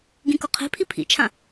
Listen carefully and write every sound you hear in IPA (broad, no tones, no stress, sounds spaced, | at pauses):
ɡ ĩ k o qʰ e̤ pʰ i pʰ ḭ t͡ʃʰ ã